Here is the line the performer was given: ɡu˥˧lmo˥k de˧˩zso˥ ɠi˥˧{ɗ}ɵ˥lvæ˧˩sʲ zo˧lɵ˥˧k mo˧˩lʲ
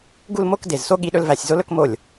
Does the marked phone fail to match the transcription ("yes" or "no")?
no